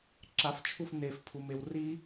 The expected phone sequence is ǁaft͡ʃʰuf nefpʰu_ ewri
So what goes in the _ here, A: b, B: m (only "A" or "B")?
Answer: B